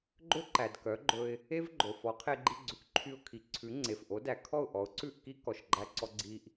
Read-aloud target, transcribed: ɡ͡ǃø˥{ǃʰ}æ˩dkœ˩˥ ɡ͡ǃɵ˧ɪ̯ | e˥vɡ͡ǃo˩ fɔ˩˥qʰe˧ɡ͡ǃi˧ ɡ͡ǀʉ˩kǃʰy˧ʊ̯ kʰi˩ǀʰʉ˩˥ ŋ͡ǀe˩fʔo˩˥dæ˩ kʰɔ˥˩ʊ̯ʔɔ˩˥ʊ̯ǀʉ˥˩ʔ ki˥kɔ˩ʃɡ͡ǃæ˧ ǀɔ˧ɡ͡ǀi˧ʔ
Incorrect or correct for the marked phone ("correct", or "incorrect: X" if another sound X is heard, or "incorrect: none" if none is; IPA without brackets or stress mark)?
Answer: incorrect: ǃ